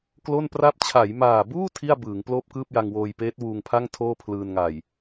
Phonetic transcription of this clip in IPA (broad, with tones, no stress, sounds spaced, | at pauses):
k l o˥˩ n p r a˥˩ p̚ t͡ɕʰ a˩˦ j m aː˨˩ b uː˥˩ tʰ i˥˩ a̯ b ɯː˩˦ ŋ p l oː˥˩ p̚ k ɯː˥˩ p̚ j a˧ ŋ w oː˧ j p eː˦˥ t̚ w uː˧ ŋ pʰ a˥˩ ŋ tʰ oː˥˩ pʰ l ɯː˧ n ŋ a˨˩ j